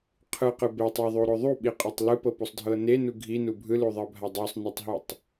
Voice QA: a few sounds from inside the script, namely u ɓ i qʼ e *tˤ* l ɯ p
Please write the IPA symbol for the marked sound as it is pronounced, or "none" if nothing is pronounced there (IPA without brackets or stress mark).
tˤ